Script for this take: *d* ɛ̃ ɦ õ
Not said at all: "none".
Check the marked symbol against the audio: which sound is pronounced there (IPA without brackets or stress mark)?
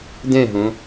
d